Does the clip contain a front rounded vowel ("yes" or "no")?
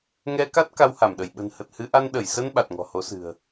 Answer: no